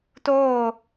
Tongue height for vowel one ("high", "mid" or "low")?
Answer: mid